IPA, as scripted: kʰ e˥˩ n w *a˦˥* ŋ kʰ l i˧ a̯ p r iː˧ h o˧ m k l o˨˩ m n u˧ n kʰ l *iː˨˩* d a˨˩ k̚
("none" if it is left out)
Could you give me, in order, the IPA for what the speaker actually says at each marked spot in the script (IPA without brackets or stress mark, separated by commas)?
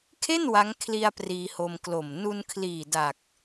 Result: a˦˥, iː˨˩